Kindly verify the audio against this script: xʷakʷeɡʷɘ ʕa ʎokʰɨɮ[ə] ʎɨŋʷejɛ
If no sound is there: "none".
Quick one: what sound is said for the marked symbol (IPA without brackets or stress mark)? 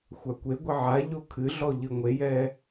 ɔ